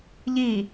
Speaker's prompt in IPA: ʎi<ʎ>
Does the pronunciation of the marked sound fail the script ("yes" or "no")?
yes